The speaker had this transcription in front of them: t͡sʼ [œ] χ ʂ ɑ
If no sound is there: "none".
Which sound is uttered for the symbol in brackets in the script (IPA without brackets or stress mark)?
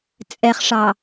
ɛ